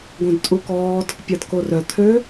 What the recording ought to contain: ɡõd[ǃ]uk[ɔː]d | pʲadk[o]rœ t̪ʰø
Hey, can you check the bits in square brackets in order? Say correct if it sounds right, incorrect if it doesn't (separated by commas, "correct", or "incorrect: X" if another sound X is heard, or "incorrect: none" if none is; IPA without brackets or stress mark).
incorrect: tʼ, correct, correct